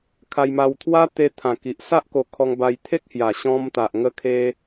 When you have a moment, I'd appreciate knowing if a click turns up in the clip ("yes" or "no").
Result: no